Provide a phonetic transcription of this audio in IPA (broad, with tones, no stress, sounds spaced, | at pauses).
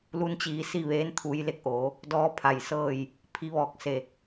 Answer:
l u˧ n t͡ɕ iː˩˧ s i˥˨ ʋ eː˧˥ n t̪ʰ u˩˧ j l e˧ k̚ ʔ oː˩˧ | d ɔː˧˥ pʰ a˧˩ j s ɤː˥˨ j | pʰ i˧ ʋ ɔː˧˩ k̚ s e˧˩